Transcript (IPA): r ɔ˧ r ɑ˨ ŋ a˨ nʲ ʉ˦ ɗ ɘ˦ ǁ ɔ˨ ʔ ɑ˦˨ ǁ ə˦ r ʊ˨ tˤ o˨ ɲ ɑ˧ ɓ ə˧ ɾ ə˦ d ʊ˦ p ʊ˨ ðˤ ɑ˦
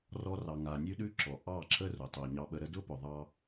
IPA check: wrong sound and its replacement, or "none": ɘ˦ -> ʉ˦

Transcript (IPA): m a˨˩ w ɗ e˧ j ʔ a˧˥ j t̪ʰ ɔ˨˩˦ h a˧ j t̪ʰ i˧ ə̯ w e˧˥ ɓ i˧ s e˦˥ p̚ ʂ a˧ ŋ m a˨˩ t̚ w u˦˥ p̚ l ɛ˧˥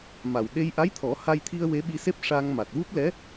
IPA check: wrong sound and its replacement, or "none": none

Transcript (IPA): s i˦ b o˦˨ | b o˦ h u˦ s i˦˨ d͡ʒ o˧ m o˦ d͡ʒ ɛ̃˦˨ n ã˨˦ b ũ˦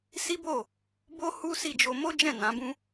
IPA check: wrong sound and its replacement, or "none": none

